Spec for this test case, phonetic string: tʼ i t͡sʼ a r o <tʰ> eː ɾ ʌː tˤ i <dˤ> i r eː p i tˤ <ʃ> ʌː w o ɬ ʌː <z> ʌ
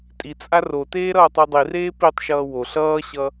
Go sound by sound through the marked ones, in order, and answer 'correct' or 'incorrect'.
incorrect: t, correct, correct, incorrect: ɕ

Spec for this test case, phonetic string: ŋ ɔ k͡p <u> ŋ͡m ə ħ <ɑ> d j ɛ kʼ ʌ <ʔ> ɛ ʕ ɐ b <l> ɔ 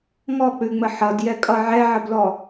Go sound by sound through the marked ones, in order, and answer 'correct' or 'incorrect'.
incorrect: ʉ, incorrect: ʌ, incorrect: ʕ, correct

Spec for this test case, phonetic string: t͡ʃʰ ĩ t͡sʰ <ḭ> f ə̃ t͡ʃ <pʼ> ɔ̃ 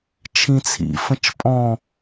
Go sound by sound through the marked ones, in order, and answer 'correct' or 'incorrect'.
correct, correct

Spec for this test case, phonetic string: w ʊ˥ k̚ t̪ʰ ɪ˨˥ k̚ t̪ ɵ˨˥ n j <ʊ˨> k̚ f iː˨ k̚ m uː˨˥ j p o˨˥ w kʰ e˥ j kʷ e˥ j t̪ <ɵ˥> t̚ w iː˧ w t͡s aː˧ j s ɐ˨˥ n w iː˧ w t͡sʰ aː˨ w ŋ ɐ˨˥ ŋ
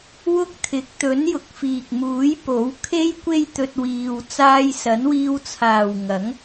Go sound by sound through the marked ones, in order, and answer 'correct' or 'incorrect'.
correct, incorrect: ɵ˧

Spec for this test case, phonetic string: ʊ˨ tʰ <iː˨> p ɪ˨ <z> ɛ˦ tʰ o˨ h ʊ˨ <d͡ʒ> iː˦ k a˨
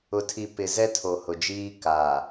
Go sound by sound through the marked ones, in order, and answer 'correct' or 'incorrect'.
incorrect: i˨, correct, correct

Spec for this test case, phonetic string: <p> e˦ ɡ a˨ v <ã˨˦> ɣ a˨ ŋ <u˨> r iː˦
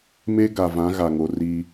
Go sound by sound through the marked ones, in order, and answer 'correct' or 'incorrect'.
incorrect: m, correct, incorrect: o˨

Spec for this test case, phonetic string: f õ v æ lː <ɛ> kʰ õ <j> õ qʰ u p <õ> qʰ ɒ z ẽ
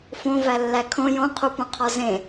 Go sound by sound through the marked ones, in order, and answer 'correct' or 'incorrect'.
incorrect: æ, correct, correct

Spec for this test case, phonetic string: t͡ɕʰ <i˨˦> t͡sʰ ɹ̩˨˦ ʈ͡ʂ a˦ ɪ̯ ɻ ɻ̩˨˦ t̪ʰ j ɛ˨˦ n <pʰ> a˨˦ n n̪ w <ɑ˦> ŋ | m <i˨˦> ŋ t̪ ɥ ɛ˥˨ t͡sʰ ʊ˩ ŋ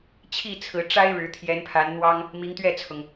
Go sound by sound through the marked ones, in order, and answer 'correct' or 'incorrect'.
incorrect: i˥˨, correct, correct, correct

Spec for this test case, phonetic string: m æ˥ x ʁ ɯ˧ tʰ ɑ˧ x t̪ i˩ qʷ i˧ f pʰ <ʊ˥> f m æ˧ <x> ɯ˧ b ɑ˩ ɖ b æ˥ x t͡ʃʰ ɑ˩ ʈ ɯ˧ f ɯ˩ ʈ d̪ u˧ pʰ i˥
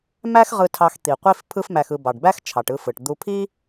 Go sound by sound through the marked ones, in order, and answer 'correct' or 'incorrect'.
incorrect: ɯ˥, correct

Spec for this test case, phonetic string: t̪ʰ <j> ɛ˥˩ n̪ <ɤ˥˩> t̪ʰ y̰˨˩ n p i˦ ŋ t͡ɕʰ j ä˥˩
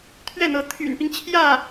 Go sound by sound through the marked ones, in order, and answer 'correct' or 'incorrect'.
incorrect: ɥ, incorrect: ɤ˧˥

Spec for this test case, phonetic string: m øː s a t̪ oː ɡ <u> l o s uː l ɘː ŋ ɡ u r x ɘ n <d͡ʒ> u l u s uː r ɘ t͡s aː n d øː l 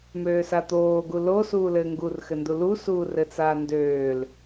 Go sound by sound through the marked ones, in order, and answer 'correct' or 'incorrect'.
correct, incorrect: d

